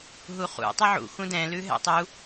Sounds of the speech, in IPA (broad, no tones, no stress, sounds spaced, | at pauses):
ɦ u χ ṵ tˤ ʉ ʕ ṵ x ũ d ɛ̃ l ʉ ɦ ɛ̰ tˤ u